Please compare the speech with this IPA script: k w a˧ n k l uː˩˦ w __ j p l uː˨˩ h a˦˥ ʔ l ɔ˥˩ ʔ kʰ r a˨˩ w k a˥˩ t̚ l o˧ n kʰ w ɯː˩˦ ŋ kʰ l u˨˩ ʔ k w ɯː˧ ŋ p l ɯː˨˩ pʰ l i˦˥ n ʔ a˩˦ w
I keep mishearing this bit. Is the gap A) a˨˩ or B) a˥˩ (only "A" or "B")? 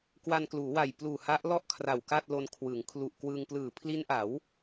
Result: A